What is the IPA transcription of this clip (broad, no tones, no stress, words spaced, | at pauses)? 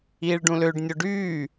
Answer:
iːɭɖũløɖ nʲoɖyː